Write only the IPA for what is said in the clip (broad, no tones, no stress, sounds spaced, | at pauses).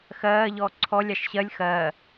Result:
x ɜː ʎ ɔː ǀʰ ɔ lʲ ɑ ʃ ɕ ɜ lʲ x ɜː